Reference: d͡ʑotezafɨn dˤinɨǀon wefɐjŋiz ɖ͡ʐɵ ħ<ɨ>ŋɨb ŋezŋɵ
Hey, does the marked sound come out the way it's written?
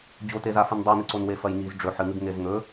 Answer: yes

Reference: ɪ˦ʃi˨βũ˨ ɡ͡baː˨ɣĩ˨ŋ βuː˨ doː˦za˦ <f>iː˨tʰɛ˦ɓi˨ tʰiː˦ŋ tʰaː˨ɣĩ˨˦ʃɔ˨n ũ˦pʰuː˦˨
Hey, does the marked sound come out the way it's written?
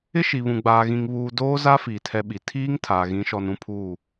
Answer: yes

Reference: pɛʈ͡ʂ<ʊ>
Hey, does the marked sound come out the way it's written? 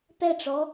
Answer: no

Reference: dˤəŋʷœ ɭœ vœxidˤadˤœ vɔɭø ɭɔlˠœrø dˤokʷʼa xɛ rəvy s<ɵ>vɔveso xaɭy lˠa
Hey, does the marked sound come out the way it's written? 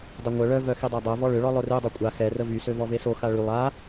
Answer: no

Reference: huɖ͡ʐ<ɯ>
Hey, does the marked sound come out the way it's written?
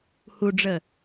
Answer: no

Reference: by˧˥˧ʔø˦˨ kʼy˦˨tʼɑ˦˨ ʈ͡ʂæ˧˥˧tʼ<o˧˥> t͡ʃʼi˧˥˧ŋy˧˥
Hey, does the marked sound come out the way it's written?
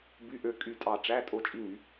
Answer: no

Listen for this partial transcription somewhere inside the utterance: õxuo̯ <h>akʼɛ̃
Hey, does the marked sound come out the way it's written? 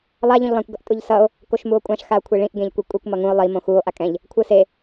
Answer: no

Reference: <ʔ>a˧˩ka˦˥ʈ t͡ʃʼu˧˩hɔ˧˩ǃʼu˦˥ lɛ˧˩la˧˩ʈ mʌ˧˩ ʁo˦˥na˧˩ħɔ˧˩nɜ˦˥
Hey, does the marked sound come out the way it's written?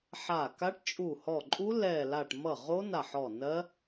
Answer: no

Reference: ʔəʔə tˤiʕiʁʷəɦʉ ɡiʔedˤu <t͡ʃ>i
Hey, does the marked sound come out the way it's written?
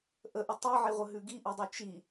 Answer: yes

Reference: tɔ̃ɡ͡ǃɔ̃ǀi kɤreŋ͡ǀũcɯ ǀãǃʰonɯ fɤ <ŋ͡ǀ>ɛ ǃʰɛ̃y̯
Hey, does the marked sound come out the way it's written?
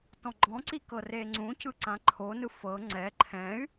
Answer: yes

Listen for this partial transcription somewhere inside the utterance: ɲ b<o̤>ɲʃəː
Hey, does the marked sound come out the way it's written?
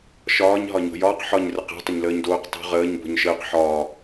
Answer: yes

